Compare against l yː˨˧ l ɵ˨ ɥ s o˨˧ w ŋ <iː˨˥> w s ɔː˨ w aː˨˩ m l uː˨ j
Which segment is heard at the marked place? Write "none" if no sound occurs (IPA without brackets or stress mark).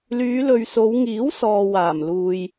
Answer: iː˨˥